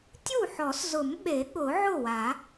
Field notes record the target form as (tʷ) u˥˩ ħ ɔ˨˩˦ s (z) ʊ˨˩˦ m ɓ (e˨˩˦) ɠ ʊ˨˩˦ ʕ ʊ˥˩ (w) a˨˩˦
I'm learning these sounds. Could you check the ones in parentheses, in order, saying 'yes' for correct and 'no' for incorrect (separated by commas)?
no, yes, yes, yes